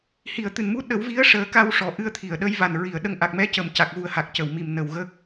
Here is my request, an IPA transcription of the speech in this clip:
hi˨˩˨ə̯t̪ɨ˨˩˨nmu˧˥ ɗə˨˩˦wvi˧˥ə̯ ʂəː˨˩˦ka˧wʂɔ˨˩˨ ʔɨ˧ə̯t̪ʰi˨˩˨ə̯ɗə˧˥j va˨˩nɹi˨˩˨ə̯ɗə˧ŋ ʔa˨˩k̚mɛ˧˥ cə˨˩m ca˨˩k̚ɣu˨˩ə̯ ha˨˩k̚cə˨˩˨w mi˨˩m nə˨˩w ɣə˦˥k̚

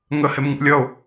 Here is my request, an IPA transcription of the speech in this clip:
ŋə hemŋṵlʲʌʊ̯

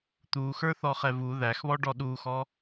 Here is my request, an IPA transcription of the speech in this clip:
t̪uxə˞θɔ χɛvu ðæxβɔɖɔ ɗuxɔ

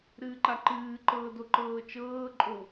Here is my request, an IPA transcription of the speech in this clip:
ɾɨːǃaǃɨːǃɤː doǃɤːt͡ʃɤːǃʼo

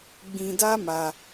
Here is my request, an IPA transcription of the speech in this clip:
ɡ͡bĩ˧da˦ma˧

